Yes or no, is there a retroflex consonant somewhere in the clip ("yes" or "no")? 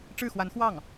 yes